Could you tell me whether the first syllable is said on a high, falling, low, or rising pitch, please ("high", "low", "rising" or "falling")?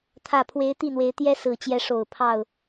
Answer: low